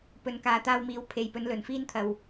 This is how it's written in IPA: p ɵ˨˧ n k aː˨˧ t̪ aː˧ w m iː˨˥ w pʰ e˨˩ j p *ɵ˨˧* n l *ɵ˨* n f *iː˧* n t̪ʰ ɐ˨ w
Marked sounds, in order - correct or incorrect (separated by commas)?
correct, correct, incorrect